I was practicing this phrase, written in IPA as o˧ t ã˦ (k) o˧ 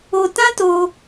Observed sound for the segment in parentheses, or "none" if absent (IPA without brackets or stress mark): t